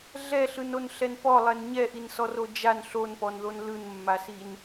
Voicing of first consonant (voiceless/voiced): voiced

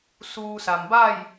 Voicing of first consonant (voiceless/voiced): voiceless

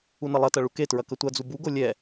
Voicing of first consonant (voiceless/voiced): voiced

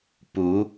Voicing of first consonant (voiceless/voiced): voiceless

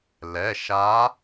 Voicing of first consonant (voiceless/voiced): voiced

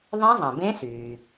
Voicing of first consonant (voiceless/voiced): voiced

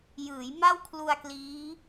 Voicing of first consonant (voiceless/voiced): voiced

